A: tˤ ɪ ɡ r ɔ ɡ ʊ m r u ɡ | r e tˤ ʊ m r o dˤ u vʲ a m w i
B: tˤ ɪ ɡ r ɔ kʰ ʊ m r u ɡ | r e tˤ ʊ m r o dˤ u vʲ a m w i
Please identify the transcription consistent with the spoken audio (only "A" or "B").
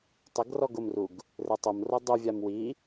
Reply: A